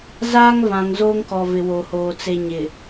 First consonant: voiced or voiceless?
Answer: voiced